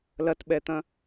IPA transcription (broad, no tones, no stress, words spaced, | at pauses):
lɐtɓɛt̪ɐ̃